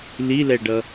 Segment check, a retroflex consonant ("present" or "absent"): present